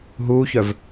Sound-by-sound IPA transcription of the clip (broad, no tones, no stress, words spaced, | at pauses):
ɦuːçœv